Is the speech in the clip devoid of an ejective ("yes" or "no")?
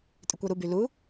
no